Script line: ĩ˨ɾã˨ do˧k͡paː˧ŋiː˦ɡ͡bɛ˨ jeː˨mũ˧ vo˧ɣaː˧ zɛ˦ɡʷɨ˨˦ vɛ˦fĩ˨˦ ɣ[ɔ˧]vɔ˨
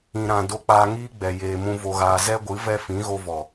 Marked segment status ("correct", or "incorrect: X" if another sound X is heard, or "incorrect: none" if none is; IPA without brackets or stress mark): incorrect: o˧